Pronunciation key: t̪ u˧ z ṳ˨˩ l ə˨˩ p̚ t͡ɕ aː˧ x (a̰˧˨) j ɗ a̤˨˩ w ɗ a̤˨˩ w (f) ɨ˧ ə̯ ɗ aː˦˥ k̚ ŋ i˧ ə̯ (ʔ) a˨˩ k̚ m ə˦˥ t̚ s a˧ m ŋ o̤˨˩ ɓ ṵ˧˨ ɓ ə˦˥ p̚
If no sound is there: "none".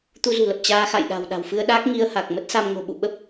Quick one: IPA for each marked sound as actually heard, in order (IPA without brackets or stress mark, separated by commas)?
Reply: a̰˧˨, f, h